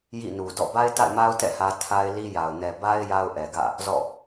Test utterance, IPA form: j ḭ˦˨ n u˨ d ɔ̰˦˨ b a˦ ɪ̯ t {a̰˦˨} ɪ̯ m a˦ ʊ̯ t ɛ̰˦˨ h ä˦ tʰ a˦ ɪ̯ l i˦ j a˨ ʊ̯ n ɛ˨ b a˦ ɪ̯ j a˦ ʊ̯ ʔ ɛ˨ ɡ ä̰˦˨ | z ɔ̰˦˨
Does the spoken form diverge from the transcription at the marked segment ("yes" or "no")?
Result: no